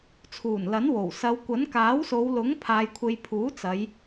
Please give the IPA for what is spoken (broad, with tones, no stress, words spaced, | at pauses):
t͡sʰuː˨˩nlɐ˨˥nwo˨˩w sɐ˨˧wkʷɐ˨˥n kaː˨˥wso˨˧wlʊ˨˥ŋ pʰaː˨jkʷʰe˨jpʰuː˨˥ t͡sɐ˨˧j